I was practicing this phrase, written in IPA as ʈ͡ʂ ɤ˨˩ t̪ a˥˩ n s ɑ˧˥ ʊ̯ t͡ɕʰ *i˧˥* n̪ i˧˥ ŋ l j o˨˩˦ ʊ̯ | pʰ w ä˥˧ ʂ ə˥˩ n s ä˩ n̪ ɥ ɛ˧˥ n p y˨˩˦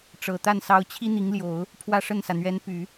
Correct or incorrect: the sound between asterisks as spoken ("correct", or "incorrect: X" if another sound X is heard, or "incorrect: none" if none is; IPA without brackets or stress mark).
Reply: incorrect: i˥